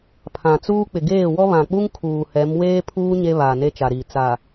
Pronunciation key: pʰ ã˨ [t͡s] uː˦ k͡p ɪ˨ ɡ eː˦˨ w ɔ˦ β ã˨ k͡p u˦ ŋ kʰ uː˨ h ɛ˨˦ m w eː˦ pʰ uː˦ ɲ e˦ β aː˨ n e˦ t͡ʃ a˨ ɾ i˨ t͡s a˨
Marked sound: correct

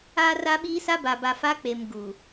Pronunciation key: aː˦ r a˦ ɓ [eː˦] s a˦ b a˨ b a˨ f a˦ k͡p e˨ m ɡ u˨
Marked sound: incorrect: iː˦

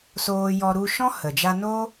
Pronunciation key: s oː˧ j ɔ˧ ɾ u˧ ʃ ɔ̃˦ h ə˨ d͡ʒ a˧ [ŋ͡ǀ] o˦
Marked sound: incorrect: n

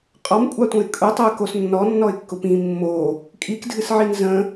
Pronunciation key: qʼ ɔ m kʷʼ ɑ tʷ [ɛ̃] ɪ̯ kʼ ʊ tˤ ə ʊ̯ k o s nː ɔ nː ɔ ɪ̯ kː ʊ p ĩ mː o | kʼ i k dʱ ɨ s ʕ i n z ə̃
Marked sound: incorrect: ə̃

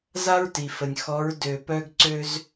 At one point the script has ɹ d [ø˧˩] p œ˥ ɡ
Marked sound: correct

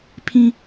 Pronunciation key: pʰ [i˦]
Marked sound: incorrect: ĩ˦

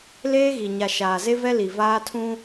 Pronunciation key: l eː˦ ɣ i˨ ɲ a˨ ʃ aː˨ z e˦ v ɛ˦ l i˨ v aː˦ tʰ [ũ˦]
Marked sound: correct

